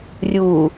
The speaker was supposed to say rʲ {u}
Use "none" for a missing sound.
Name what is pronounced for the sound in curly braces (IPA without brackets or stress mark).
u